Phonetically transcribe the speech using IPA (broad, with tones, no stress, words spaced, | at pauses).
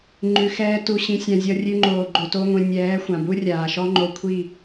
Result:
ŋ͡ǃʉ˧xɛː˦tu˧ ɕĩ˧sʲã˧zʲɔ˧rʲʉ˧ ŋ͡ǃoː˨ɡ͡ǃo˨to˧ŋʷĩ˨ nʲɛː˨˦ xʷã˨bu˦rʲaː˨ ʃɔ˦ŋ͡ǃo˧kʷʰi˦˨